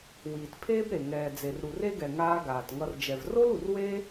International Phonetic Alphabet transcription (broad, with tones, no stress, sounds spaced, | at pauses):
w iː˩ t pʰ eː˥ b ɾ e˩ ŋ ɛː˩ d͡z e˩ r ɾ u˩ r e˥ ɡ ɛ˩ ŋ aː˧ ɡ aː˩ t ŋ ʌ˧ r d͡ʒ ɛ˩ v r o˥ l u˩ r w e˥